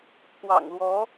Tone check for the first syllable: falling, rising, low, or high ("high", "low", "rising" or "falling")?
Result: low